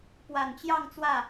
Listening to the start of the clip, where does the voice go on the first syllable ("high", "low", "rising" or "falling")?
low